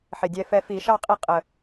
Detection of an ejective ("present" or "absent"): present